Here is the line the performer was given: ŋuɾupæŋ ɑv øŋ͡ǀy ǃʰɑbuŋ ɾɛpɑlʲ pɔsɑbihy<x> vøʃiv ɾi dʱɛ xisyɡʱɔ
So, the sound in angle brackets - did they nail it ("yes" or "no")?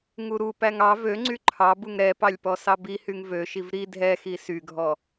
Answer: no